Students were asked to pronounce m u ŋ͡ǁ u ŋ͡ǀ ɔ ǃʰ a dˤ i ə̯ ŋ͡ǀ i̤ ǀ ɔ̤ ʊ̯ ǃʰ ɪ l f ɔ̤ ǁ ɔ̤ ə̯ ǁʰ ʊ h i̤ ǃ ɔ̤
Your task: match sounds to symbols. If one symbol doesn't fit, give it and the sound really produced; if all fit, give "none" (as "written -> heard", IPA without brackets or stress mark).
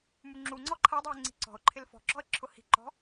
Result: none